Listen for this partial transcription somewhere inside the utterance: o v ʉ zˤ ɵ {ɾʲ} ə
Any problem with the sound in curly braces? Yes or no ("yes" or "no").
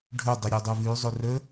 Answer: yes